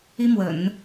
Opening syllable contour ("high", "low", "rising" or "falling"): high